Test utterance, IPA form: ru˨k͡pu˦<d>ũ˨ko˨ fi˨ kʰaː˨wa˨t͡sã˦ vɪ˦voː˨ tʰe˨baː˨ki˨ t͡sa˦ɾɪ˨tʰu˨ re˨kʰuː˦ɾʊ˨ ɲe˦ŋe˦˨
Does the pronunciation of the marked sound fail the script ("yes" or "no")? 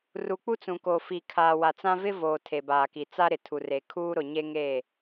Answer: yes